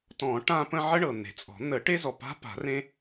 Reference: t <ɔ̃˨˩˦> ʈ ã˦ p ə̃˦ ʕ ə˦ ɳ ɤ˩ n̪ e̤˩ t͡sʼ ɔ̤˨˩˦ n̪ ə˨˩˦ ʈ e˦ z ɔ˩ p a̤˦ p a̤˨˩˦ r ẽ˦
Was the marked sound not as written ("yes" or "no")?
no